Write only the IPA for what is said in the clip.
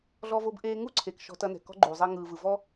ɮɔ˧vo˧bʔeː˧ ŋu˦ǀʰe˨k ʃɔ̤˧tɐ˧nɛ̤˨ kɔ̤˦ɡ͡ǃuː˨zˤe˧ ŋɯː˨vɯ˨ vɔ˦

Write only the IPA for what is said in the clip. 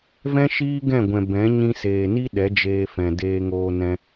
vɛ̃˦ʃiː˦ ɡɛ̃˦˨ɡʷɛ̃˨ bɛ̃˨˦ ɲĩ˧seː˨ni˦ ɗɛ˨˦d͡ʒeː˧fɛ̃˨ deː˧ŋoː˧ nɛ̃˧

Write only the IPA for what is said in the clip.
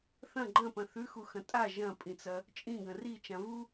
θɐ̃ ɡ͡ǃɐ̃pɐ̃ θʉxuxɐ̃ tʼa ʒɐ̃pʼĩt͡sɐ | t͡ʃʼĩɡɐ̃ rit͡ʃã vu

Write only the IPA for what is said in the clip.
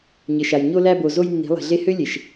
ɲɘ˨ʃa˨j ɲo˧læ˧bo˨zo˧j nːi̤˨˦lˠi̤˨ɮe˦ hø˦ lʲe˨ʃ

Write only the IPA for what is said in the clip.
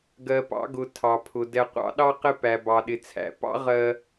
ɡɜ˨pɑ̰˦ɡʊ˨ tʰɑ˨pʰʊ˨ dɛ˨qʷɑ̰˦ɗɑ˦ qɪ˦ pæ˨ bɑ˨ɗɪ˨ t͡sʰæ̰˨pɑ̰˦ ʁɜ˨

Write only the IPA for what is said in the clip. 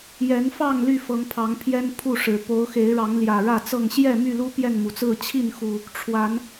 jɛ˨˦nfɑ˥˨ŋ ly˥˨fɤ˨˦ŋpʰɑ˨˦ŋpʰjɛ˦n pʰu˥˨ʂɻ̩˨˩ po˨˦ʊ̯xe˨˦ɪ̯ɻɑ˨˦ŋ ljä˨˩ɻä˥˨t͡sɤ˥˨ŋ ɕjɛ˥˨my˥˨lu˦ pjɛ˥˨nmu˩t͡sɹ̩˥˨ t͡ɕʰi˥˨nxu˨˩ | ʈ͡ʂʰwa˨˦n

